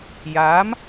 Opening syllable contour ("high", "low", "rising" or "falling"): rising